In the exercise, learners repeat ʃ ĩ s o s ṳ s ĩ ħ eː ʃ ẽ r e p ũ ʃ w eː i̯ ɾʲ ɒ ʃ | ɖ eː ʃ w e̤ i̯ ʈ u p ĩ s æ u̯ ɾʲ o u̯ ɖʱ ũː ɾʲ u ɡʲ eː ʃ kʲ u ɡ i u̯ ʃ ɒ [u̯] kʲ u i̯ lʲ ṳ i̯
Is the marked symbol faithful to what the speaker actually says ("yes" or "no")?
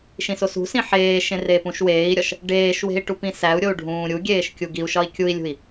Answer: no